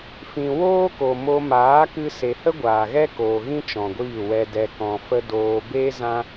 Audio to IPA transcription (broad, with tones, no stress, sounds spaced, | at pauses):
f ĩ˨ w oː˦ k o˨ m o˧ m aː˨˦ k ɨ˧ s e˨ h ə˦ ɡʷ aː˨ ɣ ɛ˦ k oː˨ ɣ ĩ˦ t͡ʃ ɔ̃˨ ɡʷ iː˦˨ w ɛ˧ d ɛ˨ k ɔ̃˨ f ə˧ d oː˧ b e˦ z ã˦